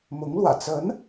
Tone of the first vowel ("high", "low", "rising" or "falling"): rising